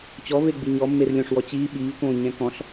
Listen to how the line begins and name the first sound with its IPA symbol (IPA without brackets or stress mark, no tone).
t͡ɕ